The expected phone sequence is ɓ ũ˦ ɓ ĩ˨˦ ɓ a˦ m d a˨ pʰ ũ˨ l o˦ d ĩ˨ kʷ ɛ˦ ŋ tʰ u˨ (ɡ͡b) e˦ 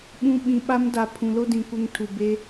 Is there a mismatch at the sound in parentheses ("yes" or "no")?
yes